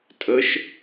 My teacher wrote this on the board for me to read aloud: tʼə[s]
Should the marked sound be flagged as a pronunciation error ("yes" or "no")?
yes